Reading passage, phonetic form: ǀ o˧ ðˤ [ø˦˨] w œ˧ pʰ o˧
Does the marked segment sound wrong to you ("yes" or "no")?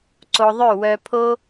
no